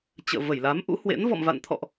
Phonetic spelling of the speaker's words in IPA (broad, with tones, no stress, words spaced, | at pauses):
t͡ɕə̰ː˧˨və˧˩jla˨˦mʔṵ˧˥ hwḛ˧˥n vɔ̰˧˨mva̰˧˨nt̪ʰɔ̰˧˨ʔ